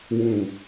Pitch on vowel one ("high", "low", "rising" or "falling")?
low